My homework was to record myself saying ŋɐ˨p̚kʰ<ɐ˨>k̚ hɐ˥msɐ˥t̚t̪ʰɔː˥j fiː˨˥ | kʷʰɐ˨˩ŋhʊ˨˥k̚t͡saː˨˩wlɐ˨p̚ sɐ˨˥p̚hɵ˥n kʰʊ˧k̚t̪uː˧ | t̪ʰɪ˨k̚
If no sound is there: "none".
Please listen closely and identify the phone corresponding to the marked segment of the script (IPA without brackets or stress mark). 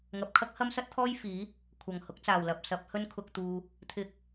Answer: ɐ˥